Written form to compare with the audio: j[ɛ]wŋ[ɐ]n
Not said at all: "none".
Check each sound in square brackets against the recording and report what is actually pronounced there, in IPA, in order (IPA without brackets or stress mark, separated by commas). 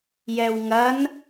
ɛ, ɐ